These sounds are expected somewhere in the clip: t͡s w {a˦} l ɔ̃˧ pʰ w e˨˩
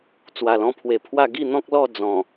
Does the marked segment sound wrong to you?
yes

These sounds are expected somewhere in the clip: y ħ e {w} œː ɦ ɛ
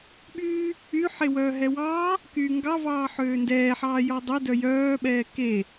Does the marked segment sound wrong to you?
no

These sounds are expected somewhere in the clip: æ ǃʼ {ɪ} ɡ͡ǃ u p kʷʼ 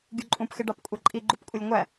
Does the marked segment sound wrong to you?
yes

